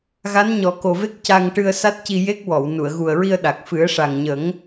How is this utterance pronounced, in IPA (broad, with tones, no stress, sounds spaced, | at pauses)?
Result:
ɣ a˧˥ n ɲ ɔ˨˩˦ k o˨˩ v e˦˥ k̚ c a˧ ŋ ʈ ɨ˧ ə̯ s a˦˥ t̚ c i˧ j e˦˥ k̚ w ɔ˨˩˨ w n u˨˩˨ ə̯ ɣ u˨˩ ə̯ ɹ i˧ ə̯ ɗ a˨˩ k̚ f ɨ˨˩˦ ə̯ ʂ a˨˩ ŋ ɲ ə˨˩˦ ŋ